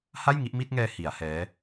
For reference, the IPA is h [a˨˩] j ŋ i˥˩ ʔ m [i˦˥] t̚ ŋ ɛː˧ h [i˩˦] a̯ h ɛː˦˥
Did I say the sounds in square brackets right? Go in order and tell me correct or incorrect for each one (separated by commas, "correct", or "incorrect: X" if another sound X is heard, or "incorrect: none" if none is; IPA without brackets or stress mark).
incorrect: a˥˩, incorrect: i˥˩, correct